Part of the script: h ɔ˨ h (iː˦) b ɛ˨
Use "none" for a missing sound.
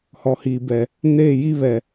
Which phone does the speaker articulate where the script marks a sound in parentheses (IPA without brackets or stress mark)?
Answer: iː˨